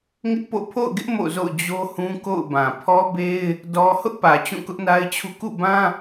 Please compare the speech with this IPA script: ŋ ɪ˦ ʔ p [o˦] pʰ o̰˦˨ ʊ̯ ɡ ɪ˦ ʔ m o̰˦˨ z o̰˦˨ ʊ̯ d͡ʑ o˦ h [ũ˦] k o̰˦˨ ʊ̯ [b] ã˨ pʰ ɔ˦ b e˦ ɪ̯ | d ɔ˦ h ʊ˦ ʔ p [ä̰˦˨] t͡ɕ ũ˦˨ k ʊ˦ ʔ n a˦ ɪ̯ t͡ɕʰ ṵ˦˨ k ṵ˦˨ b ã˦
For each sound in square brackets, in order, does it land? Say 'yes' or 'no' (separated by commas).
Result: no, yes, yes, no